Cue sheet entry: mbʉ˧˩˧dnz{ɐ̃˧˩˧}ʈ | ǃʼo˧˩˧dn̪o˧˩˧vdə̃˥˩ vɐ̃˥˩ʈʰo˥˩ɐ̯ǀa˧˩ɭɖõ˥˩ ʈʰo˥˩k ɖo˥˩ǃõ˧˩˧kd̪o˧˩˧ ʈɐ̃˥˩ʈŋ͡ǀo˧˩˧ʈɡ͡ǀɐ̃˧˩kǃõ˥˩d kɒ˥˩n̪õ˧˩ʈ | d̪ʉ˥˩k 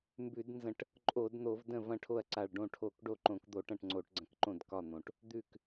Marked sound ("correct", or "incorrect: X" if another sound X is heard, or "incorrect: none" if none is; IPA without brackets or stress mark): incorrect: ə̃˧˩˧